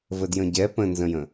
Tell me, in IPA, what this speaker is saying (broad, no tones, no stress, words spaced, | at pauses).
vədjə̃ɟɛ pə̃nzə̃jə̃